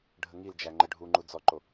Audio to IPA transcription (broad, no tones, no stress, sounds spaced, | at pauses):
ɖʱ ə ŋ i l d͡ʒ æ ŋ͡ǃ ə ɖʱ u ŋ͡ǃ u d͡z ɔ ǃ o